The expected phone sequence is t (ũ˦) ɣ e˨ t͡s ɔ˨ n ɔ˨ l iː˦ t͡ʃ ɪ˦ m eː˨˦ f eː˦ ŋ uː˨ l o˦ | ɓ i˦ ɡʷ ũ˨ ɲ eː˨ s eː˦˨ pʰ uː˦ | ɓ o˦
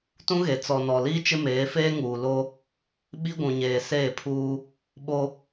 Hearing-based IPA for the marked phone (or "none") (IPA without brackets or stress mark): ũ˦